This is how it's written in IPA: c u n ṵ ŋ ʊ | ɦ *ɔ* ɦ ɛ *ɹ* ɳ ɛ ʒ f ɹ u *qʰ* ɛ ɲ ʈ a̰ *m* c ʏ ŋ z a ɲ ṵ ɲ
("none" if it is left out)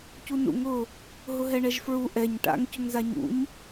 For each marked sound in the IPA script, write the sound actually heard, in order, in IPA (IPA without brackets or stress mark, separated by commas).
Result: ʊ, none, ʔ, ŋ